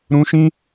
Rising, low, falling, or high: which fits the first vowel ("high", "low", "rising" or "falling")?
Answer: high